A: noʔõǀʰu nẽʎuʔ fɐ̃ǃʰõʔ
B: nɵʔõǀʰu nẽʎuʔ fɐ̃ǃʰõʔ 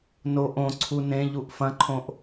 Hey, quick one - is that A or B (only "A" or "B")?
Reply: A